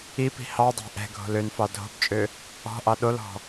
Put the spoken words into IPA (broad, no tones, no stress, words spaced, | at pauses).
ipi̤ hɑdˤɑ̤ ʔɛ̤ɡʱo̤l ønfɑ dʱo̤bt͡ʃʼø | ɔ̤ʔɑ ɗolɔ̤